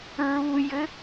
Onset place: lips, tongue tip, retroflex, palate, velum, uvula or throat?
tongue tip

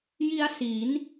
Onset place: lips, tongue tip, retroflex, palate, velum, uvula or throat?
palate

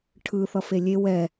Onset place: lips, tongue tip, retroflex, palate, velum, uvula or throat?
retroflex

